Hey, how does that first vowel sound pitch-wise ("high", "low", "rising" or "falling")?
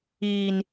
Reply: low